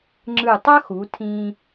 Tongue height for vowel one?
high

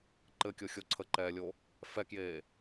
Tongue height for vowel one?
mid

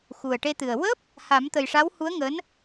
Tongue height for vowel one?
high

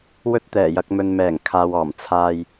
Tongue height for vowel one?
mid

